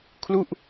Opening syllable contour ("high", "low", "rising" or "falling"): falling